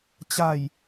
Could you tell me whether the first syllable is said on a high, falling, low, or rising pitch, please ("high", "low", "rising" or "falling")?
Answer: low